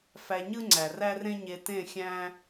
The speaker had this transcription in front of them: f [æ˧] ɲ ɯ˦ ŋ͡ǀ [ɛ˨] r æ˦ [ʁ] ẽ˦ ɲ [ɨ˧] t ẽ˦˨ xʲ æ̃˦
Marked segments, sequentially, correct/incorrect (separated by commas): correct, incorrect, incorrect, incorrect